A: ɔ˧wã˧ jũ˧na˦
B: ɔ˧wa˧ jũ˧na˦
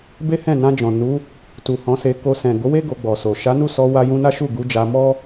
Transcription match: B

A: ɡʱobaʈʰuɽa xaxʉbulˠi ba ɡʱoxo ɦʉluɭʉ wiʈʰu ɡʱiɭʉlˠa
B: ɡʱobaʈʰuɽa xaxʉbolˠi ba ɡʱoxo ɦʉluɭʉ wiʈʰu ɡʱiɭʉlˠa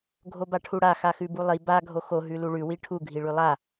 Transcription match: A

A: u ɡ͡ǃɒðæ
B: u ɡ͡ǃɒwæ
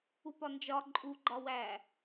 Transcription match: B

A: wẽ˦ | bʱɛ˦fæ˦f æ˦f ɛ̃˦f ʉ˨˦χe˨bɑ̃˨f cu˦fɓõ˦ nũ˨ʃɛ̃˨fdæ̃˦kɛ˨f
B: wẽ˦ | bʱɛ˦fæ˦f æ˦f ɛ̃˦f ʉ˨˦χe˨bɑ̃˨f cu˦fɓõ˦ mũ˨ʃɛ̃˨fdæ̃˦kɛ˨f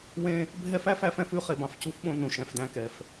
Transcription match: A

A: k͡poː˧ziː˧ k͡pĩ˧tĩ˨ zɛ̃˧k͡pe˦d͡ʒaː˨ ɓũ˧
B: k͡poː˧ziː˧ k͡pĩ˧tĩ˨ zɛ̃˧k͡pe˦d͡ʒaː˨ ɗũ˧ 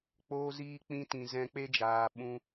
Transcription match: A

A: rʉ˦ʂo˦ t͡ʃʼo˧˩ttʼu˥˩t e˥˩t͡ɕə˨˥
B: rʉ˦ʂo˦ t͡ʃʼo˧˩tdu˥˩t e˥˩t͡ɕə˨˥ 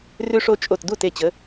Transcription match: B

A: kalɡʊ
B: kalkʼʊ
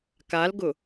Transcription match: A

